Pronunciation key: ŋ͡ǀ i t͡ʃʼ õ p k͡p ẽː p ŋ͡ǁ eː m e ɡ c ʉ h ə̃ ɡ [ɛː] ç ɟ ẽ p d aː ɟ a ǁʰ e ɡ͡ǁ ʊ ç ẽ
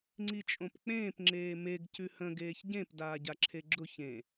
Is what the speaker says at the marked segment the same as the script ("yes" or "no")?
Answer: no